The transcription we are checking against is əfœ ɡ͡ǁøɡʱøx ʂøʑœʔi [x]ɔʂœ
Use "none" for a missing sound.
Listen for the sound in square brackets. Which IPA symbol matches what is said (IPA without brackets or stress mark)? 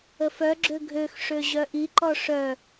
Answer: ǃ